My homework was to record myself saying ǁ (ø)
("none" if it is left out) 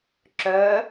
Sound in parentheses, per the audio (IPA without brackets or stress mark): œ